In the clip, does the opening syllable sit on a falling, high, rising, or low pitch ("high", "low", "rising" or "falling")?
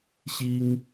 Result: high